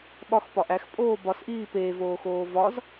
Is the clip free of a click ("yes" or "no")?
yes